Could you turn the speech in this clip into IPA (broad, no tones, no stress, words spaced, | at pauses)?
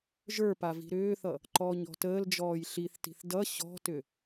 ʒə˞pa vi̤ɾʏːθʌ | ǃɔːɲɔ̤təːld͡ʒɔːj ɬiθti̤θ dʌ ɕɔ̤tʏ